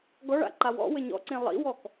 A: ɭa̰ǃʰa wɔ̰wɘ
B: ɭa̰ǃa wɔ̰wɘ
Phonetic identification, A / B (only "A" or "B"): B